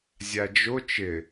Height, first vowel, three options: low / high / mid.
low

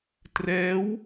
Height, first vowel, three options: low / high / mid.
mid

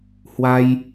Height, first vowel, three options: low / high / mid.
low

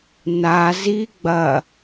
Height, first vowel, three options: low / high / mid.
low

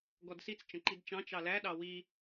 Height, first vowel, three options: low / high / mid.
mid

